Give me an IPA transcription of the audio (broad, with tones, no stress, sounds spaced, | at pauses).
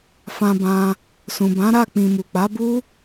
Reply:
f ã˧ b ã˧ | s ũ˨ b ã˨˦ ɾ a˦˨ k͡p ĩ˨ m u˨ k͡p a˨˦ b u˦